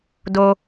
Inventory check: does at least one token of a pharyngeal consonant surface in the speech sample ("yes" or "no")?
no